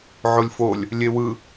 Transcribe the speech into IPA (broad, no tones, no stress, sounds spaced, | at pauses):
ʕ o lʲ f o lʲ | lʲ e w ɯ